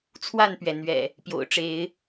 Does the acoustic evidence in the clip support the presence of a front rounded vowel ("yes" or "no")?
no